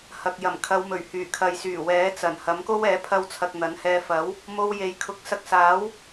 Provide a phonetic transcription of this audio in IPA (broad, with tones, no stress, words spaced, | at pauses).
hɐ˨k̚jɐ˨˩m kʰɐ˨˧wmɵ˨˩ɥ hyː˨˩kʰɐ˨jsyː˨˩ wɛː˨˥t͡sɐ˨˩nhɐ˨˥mko˥w ɛː˨˥pʰɐ˧wt͡sʰɐ˨k̚ n̪ɐ˨˥nhɛː˧ fɐ˨˥w | mo˧wje˨jkʰʊ˨˥k̚ sɐ˧k̚saː˨˥w